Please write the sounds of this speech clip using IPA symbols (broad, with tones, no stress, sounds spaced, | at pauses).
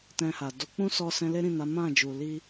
t ɛ̃˧ h a˨ d o˨˦ k͡p ũ˦ s ɔ˧ s ɛ̃˧ l e˦ ɾ ĩ˦˨ n a˨˦ m ã˦˨ d͡ʒ u˨ l i˧